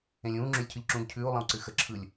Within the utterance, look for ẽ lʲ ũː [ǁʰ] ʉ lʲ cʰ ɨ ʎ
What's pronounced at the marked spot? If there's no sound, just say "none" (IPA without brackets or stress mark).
ŋ͡ǁ